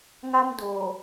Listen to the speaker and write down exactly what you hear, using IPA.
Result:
ŋ a˦ m d oː˨

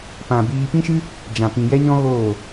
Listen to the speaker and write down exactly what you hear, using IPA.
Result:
p ã˨ b iː˧ p ĩ˦ ʃ ɨ˦ | d͡ʒ ã˨ p ĩ˨ j ɛ˦ ɲ ɔ̃˦ ɣ oː˦˨

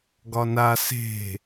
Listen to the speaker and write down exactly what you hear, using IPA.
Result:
ɡ ɒ n a s e̤

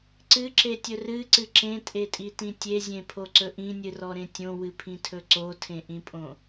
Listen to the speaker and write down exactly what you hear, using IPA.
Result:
ǀ ɨ ǁ e tʲ ɵ r ɨ ǀ ɨ ǁ ẽ tʼ e tʼ i t ĩ tʲ e zʲ ẽ pʰ o ǀ ɵ ʔ ĩ nʲ ɨ r ɔ ɾ ẽ tʲ õ w ɨ pʰ ĩ tʰ ɵ ǀ o tʰ ẽ ʔ ĩ pʼ õ

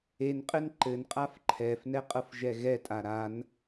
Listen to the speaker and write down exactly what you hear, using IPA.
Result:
e n qʼ ɘ n ǃ ɘ n qʼ a f ǃʰ ɛ f n ɛ qʼ ɤ f ʒ ɛ ɣ ɛ tʼ a ɾ a n

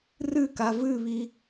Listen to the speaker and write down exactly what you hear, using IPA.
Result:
r ɨ k a v ɨ β i

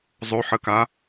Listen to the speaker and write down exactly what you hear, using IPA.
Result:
zˤ o ħ ə k a

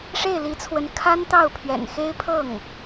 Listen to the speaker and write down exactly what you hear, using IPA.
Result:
ʂ e˥˩ ɪ̯ l i˧˥ t͡sʰ w ə˧˥ n kʰ a˥ n t̪ ɑ˥˩ ʊ̯ pʰ ɥ ɛ̰˨˩ n x e˥ ɪ̯ pʰ ɤ˥˩ ŋ

